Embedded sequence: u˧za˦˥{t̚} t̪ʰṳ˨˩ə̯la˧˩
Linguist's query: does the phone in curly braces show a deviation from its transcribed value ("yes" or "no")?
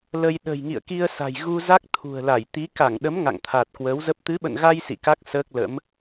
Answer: yes